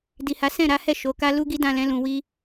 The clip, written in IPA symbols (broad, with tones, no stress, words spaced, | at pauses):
di˨ha˨˦ sɛ̃˦˨ɾa˨˦hɛ˦˨ ʃo˨˦ka˦ lu˦ɡi˦dã˦˨lɛ̃˨˦ lũ˧wi˦